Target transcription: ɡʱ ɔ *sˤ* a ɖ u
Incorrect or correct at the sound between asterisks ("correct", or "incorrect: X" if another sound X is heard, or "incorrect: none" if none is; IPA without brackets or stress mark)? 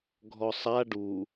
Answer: correct